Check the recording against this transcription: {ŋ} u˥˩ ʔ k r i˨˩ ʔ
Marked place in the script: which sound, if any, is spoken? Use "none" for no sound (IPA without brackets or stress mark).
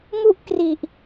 ŋ